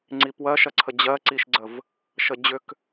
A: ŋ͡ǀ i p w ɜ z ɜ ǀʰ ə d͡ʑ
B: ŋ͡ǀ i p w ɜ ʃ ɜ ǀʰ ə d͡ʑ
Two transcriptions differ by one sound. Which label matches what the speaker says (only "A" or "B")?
B